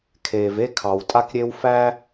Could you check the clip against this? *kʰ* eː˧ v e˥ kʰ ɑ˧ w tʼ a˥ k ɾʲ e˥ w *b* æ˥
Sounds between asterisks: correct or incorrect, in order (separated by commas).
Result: correct, incorrect